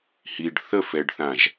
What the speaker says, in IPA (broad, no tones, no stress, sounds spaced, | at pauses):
h i ɖ θ ə f ɛ ɖ θ ã ʒ